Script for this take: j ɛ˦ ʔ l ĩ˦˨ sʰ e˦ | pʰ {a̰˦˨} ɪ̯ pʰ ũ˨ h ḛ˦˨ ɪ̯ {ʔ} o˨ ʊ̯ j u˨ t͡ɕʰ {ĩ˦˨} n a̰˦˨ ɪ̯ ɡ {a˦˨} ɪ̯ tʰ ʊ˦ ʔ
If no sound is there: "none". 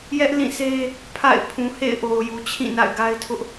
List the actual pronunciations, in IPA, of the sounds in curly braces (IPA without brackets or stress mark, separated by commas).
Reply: a̰˦˨, ʔ, ĩ˦˨, a˦